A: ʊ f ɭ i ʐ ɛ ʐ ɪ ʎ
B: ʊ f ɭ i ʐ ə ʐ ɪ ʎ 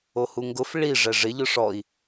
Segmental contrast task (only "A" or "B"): A